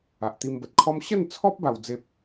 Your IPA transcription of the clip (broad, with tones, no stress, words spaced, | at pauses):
a˨ʔt̪i˧mbə˨t̚kʰɔ˦m ɕə˥˧nt͡sʰɔ˦p̚ ba˧wd͡ze˦p̚